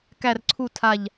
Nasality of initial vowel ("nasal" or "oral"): oral